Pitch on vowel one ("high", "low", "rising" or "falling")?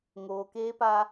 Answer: low